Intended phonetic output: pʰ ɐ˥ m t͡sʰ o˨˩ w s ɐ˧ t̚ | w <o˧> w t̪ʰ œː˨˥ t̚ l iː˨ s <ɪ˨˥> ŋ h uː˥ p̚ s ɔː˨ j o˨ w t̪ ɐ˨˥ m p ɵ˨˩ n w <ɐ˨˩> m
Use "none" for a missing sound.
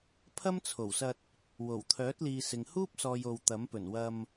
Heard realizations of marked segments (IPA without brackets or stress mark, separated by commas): o˨˩, ɪ˨, ɐ˧